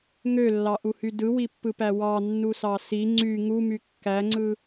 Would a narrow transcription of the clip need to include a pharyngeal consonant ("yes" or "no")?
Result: no